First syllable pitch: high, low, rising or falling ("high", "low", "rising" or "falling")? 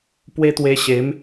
high